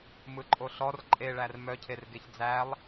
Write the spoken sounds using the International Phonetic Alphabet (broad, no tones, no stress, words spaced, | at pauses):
mɯǃʼoɬɔr ǃʼeɭær mœcʰerɡeç d͡zælˠ